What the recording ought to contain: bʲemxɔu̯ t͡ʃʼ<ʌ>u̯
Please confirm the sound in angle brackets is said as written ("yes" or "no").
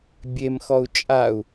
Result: no